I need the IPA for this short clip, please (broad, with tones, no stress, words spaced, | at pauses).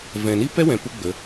vɛ̃˨ni˦ pɛ˦wɛ̃˨ pu˦ɡ͡bə˨˦